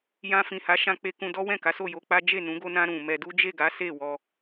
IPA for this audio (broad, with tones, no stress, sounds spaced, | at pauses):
j ã˧ f ĩ˨ h a˨˦ ʃ ã˧ k͡p e˧ k ũ˧ d ɔ˦ w ɛ̃˦˨ k a˨˦ s o˦˨ j o˧ k͡p a˦ d͡ʒ e˦˨ n ũ˨˦ ɡ o˧ n ã˧ ɾ ũ˨ m ɛ˧ d u˦ d͡ʒ e˦˨ ɡ a˨˦ s e˦˨ w ɔ˧